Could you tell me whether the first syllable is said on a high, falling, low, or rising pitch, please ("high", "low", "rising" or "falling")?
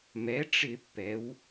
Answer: rising